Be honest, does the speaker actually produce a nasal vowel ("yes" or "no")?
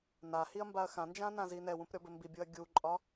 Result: yes